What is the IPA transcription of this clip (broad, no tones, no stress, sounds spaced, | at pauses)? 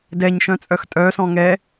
d ɛ ɲ ʃ œ̃ t͡sʼ œ x tʼ œ s ɔ̃ ŋ ɛ